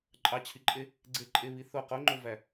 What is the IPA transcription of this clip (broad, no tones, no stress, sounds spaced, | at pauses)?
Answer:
ǃʼ ɑ t͡ɕʰ i ǃʼ e | ɡ͡ǀ e ǃʼ e β i θ o q o ŋ͡ǃ o v æ